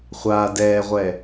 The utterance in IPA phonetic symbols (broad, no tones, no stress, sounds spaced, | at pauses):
χʷ a d ɛ ʁʷ ɛ